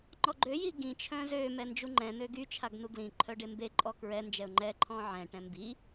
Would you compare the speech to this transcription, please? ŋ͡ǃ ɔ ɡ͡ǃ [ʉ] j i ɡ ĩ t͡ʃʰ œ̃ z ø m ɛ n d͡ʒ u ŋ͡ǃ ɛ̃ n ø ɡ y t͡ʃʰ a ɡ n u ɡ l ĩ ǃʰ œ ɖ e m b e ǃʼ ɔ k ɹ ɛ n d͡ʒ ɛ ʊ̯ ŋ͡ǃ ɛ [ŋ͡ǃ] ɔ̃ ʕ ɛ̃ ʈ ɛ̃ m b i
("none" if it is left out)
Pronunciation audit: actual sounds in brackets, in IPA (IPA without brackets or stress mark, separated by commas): ø, ǃʰ